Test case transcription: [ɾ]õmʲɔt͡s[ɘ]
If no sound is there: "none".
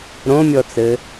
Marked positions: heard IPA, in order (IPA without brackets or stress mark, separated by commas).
ɾ, ɘ